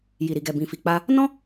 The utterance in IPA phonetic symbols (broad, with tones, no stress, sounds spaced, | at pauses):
j i˨ ɾ i˨ ɡ ɛ˨ b ĩ˨ f i˨ k͡p a˧ | n ɔ̃˦